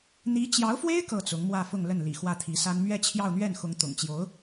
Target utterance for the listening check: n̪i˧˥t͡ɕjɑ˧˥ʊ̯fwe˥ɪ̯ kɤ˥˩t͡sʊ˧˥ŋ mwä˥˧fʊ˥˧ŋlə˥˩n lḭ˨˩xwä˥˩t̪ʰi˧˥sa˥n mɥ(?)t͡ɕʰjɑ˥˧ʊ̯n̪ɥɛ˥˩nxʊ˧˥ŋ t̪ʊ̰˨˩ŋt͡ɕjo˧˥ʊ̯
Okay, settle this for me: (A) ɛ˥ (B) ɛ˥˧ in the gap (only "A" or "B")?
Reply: B